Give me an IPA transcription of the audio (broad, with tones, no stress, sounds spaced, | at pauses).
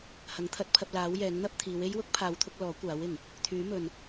h ɐ˨˥ ŋ t̪ʰ ɐ˨˥ t̚ pʰ ɐ˧ p̚ l aː˨˥ w j ɛː˨˥ ŋ n̪ ɐ˥ p̚ t̪ʰ iː˨˧ w e˥ j w ʊ˥ k̚ pʰ aː˨˧ w t̪ʰ ʊ˧ k̚ l ɔː˨˥ kʷ aː˨˥ w ɪ˨˩ ŋ | t̪ʰ yː˨˥ m ɵ˨ n